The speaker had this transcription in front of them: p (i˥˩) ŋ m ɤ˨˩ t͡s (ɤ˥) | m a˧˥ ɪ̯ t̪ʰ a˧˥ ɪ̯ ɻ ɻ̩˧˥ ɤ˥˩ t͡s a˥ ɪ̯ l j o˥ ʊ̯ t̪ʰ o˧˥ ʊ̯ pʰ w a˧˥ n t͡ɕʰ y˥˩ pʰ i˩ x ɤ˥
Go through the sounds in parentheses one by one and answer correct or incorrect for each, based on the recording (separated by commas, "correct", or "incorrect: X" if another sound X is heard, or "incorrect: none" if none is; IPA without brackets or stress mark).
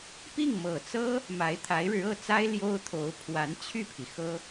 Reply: correct, correct